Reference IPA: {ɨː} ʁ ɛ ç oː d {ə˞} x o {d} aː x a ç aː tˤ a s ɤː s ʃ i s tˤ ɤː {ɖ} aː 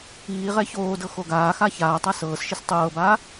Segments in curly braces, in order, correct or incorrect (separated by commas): incorrect, incorrect, incorrect, incorrect